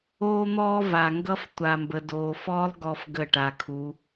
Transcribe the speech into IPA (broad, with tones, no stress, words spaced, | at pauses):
oː˦n̪ɔː˦va˨ŋɡʌ˦f tʷa˨mbə˨doː˨fɔː˦lˠ ɡɔ˦fɡə˦˨ʈa˨kʰu˨˦